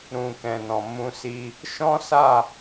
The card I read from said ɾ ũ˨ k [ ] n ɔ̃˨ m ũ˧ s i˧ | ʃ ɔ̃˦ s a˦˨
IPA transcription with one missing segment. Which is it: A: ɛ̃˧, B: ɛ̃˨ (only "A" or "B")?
B